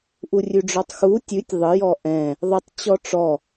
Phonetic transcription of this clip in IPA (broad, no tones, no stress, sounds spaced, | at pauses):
ʔ u rʲ ʉ ɖ͡ʐ ɔ tˤ x u tʲ ʉ tʲ ðˤ ə j ɔ ʔ ɛ̃ | ðˤ ə tˤ t͡ɕ ɔ ʈ͡ʂ ɔ